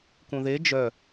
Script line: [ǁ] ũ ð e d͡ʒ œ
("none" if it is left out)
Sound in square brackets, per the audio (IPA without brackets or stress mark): k